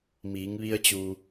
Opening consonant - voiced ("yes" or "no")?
yes